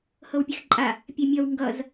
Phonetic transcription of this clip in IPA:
h ɤ w pʲ e x ǃʼ a | pʲ e mʲ ʌ w ŋ ɡ ʌ z

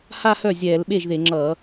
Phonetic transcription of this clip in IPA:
h a˥˧ h œ˥˩ zʲ ɛː˧˩˧ l ɓ e˥˩ ʒ ð e˧˩˧ ŋ͡ǁ ʌː˧˩˧

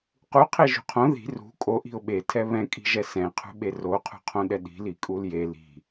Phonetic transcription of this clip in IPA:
q u qʰ e ʒ ṳ qʰ õ ð i̤ r ṳ kʼ o ʔ i̤ ʊ̯ ɓ e tʰ ɛ β ɛ̃ kʼ i̤ ʒ ɛ s ɛ̃ qʰ ṳ ɓ e r o qʰ ṳ qʰ õ ɗ ɛ ɗ i̤ l i kʼ u l j e l i̤

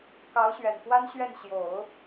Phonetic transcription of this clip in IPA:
k ɑ˧˥ ʊ̯ ɕ ɥ ɛ˨˩ n x w a˥ n ɕ ɥ ɛ˥˩ n ɕ j o˨˩˦ ʊ̯

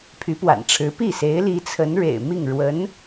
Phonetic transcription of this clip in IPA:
pʰ y˧˥ p w a̰˨˩ n ʈ͡ʂʰ ɻ̩˧˥ p i˥˩ s e˧˥ ɪ̯ l i˧˥ t͡sʰ ə˧˥ n ɻ ḛ˨˩ ɪ̯ m i˥˩ ŋ ɻ w ə˧˥ n

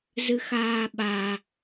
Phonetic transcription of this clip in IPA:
z ɨ x aː ɓ a

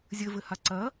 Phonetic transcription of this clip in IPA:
zʲ ɘ v ɘ h a ǀ ɐ

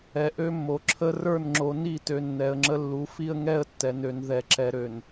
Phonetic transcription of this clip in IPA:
ɛ˨ ʔ ø˦ mː o˨ ǁʰ ə˦ r ə˞˦˨ n ŋ͡ǁ o˨ n i˦˨ t ø˨ nː ɛ˨ ə̯ ŋ͡ǁ ə˦ lː u˨˦ f i˦ ə̯ ŋ ɛ˦ ə̯ tː ɛ˨ n ø˨ n ð ɛ˨ ǁ ɛ˨ ɾ ø˨ n

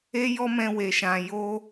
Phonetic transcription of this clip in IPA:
e˦ j ɔ˦ m ɛ̃˧ w e˨ ʃ ã˨ j o˧

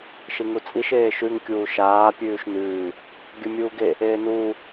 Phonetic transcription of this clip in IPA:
ʃ i ŋ u t͡sʼ i ʃ eː ʃ ʉ ŋ kʲ uː ʃ aː pʲ ʉː ʃ n ʉː | ɡʲ ɵ mʲ uː ɡ e | eː n uː

